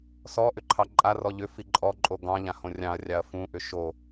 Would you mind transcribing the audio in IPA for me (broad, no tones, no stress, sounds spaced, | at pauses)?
s ɔ ʔ ʏ ǃʰ ɑ ǃʼ a r ɔ ʎ ʏ f i ǃʼ ɔ ǃʼ o ɡ ɑ̃ ʎ ã h õ rʲ ɑ̃ ɐ̯ rʲ ɑ ɐ̯ f ũ ʔ ʏ ʃ o